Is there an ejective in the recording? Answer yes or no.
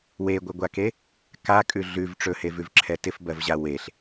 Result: yes